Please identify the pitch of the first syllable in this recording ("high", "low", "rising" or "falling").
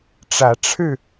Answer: rising